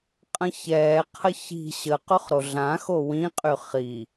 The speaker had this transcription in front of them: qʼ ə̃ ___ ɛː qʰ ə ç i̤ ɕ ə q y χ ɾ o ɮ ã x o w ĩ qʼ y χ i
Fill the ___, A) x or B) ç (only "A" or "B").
B